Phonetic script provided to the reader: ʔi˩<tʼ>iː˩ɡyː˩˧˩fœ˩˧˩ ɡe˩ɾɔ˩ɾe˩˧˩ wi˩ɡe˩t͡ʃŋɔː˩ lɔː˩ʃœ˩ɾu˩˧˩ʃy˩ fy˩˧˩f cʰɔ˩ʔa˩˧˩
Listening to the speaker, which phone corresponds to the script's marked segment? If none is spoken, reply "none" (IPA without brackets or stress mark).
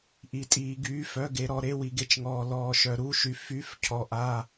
tʼ